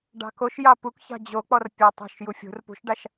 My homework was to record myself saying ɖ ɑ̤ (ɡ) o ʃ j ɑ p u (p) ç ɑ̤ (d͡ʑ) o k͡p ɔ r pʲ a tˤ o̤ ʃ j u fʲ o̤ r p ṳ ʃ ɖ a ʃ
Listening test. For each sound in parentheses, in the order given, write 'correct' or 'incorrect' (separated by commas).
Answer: incorrect, incorrect, correct